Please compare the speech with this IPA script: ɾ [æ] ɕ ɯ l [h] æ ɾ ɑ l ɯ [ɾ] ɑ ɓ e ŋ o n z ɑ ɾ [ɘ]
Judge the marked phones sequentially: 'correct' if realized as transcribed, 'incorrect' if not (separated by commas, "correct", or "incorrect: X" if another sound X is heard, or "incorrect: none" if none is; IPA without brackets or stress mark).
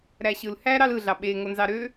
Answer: correct, correct, incorrect: ɮ, incorrect: ø